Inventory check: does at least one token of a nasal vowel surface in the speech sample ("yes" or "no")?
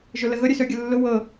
no